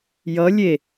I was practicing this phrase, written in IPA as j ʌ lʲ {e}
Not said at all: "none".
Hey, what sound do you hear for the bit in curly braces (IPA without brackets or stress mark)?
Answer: e